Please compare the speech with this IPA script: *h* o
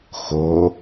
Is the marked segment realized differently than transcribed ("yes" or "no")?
yes